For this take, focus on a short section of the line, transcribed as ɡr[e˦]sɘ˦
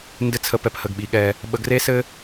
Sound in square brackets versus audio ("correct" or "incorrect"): correct